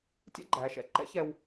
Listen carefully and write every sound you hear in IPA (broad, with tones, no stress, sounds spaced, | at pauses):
tʲ ɛ̰˥ ɡ͡ǃ æː˩˧ ʃ ɛ̰˥ ǃ ɛ̰˥ ç ɛ˧ w